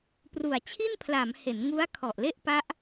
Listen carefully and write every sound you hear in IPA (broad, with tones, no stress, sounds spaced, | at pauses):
p r u˨˩ a̯ t͡ɕʰ i˥˩ n pʰ l a˩˦ m h e˩˦ n ŋ u˦˥ a̯ kʰ ɔ˨˩ ʔ l e˥˩ ʔ p a˦˥ ʔ